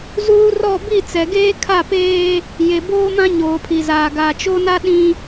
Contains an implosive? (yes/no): yes